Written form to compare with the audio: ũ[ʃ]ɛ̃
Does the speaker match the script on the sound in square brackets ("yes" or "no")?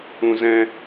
no